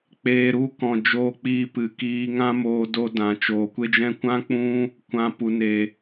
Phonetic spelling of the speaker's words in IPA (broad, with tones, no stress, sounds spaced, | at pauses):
k͡p eː˨ ɾ u˨˦ k ɔ̃˨ d͡ʒ oː˧ k͡p iː˧ p ɨ˨ k iː˧ ŋ ã˦ m oː˧ d o˧ d ã˨ t͡ʃ oː˨ kʷ e˦ d͡ʒ ɛ̃˦ kʷ ã˦ k͡p ũ˦ | kʷ ã˧ p u˨ n e˨